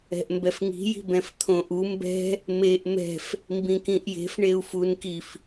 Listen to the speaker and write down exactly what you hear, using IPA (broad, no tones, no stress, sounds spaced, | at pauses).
ɛ̤ ʔ m b ɛ f ŋ i̤ j i̤ b ɛ̃ f t̪ʰ õ ʔ u m b ɛ̤ | m e ʔ m ɛ̤ f | m b ĩ k ĩ ʔ j e̤ f ɳ e u̯ f u n k i f